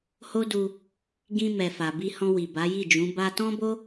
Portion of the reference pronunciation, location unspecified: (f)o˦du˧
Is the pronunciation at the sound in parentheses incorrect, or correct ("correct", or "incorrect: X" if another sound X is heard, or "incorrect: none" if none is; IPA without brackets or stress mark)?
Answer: incorrect: h